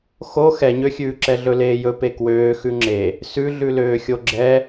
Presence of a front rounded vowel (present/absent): present